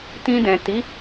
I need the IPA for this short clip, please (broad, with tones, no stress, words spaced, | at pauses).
tĩ˧dɛ̃˨ ti˨˦